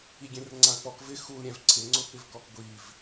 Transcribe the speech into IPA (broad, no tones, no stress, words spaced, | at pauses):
iɡʲẽrŋ͡ǀãə̯k͡pɔk vɪ xul ɾʲɛ̃vǀʰɪ ŋ͡ǀʊpɪvkɔkɡʷiv